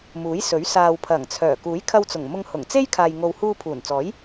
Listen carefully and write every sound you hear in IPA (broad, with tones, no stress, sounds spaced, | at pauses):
m uː˨˥ j s ɵ˨˥ ɥ s aː˨ w pʰ ɐ˨˩ ŋ t͡sʰ œː˨˩ k uː˨˥ j kʰ ɐ˧ w t͡s ʊ˨˩ ŋ m ʊ˧ ŋ h ʊ˨˩ ŋ t͡s e˥ j kʰ aː˨ j ŋ o˨ w h uː˧ pʰ uː˨˩ n t͡s ɔː˨˥ j